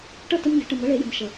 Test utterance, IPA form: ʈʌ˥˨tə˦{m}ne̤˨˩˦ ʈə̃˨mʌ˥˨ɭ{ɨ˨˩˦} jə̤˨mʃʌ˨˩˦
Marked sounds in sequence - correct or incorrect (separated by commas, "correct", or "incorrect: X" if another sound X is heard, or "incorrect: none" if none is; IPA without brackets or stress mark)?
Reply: correct, incorrect: e˨˩˦